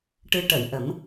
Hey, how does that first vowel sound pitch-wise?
rising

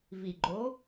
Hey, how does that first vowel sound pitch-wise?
low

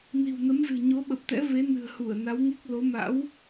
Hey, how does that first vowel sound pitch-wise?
low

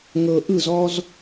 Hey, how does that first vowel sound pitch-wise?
low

